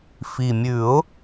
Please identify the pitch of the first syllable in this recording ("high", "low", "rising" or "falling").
low